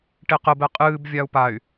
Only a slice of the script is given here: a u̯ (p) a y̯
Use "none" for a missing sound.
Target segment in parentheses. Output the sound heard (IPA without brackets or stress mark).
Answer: p